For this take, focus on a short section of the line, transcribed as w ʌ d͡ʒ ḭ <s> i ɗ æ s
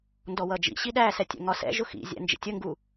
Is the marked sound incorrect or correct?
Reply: incorrect